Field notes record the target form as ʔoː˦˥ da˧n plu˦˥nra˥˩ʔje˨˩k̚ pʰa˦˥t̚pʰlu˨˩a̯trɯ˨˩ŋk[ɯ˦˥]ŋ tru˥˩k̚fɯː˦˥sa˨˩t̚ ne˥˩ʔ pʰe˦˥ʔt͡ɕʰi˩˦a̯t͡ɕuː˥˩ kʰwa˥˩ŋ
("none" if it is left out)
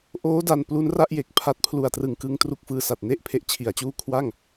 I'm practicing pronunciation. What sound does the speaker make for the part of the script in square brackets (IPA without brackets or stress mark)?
ɯ˧